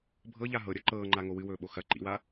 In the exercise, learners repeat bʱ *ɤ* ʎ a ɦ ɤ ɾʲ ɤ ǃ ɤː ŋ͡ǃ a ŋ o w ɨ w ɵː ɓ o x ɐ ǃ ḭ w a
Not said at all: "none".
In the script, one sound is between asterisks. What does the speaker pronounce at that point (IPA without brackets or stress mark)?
ɤ